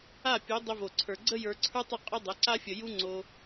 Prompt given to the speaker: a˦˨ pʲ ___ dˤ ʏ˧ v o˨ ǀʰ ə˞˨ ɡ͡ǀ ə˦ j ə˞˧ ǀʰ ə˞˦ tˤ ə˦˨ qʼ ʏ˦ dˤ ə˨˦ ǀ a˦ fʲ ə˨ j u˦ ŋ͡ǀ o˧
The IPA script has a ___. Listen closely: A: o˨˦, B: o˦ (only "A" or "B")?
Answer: A